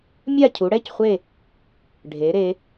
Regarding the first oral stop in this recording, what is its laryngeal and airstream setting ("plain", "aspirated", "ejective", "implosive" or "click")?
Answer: aspirated